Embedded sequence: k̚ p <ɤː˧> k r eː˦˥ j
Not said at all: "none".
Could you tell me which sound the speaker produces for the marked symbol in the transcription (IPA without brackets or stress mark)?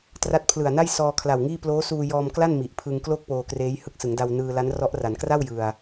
oː˧